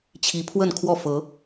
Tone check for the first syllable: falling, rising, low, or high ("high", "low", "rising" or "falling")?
rising